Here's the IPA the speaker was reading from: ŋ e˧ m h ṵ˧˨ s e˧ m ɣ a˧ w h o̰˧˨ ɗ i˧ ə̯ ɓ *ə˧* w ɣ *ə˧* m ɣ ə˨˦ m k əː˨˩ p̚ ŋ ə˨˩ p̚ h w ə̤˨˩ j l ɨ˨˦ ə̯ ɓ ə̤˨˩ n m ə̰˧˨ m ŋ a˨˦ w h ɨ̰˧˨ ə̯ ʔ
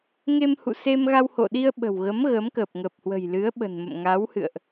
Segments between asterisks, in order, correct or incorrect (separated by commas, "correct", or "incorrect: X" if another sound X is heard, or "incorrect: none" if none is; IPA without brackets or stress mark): incorrect: ə̤˨˩, incorrect: ə˨˦